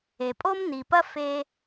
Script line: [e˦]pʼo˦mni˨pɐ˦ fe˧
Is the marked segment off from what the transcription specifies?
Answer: yes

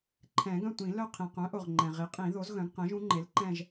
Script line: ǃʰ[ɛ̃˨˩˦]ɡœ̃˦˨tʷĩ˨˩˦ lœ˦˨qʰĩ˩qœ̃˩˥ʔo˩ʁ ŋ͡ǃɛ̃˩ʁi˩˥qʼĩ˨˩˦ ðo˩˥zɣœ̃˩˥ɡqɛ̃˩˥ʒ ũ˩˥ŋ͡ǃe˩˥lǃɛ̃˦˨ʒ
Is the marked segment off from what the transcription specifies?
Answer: no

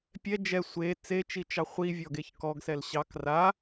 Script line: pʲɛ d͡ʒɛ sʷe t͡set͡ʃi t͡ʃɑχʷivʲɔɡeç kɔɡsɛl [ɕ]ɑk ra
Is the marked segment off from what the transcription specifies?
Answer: no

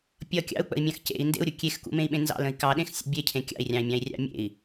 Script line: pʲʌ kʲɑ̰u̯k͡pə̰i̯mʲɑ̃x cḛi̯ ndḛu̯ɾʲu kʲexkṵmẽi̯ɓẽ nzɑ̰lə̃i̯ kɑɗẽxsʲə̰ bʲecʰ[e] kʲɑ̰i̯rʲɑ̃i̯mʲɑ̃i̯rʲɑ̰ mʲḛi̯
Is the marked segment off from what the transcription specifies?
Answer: yes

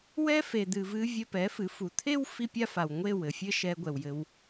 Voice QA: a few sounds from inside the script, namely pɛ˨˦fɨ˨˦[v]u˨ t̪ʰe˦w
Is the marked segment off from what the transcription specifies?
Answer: yes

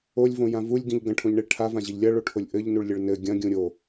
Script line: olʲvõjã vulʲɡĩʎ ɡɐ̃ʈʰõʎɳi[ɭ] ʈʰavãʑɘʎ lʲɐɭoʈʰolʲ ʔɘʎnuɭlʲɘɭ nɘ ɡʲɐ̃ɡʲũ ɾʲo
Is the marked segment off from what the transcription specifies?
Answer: no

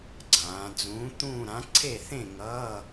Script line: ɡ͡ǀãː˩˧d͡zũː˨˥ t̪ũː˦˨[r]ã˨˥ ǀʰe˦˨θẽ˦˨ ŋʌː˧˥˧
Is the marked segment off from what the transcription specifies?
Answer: yes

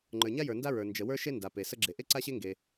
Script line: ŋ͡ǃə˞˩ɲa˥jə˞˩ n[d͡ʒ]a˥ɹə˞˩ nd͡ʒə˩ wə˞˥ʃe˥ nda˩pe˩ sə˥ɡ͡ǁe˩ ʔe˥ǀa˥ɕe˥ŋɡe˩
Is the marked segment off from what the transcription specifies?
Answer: yes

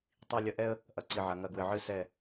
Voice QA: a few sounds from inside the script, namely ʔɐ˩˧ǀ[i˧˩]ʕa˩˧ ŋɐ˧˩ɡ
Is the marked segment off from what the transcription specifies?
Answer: no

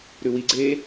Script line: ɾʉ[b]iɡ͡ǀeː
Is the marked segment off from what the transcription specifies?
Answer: yes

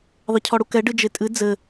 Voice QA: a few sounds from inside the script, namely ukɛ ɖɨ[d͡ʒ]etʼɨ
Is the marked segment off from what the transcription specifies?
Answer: no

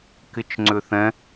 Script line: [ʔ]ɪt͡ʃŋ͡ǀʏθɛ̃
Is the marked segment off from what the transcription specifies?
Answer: yes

